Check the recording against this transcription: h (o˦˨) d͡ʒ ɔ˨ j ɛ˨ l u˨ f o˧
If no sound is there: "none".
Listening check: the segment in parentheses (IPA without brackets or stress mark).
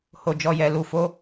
o˨